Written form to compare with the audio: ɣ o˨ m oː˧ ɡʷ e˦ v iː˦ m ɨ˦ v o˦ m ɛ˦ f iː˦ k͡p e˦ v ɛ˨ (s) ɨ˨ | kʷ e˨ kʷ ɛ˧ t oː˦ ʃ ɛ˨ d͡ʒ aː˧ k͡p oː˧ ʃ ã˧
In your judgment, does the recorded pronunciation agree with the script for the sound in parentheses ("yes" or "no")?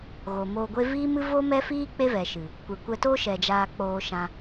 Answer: no